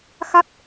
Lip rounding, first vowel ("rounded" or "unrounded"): unrounded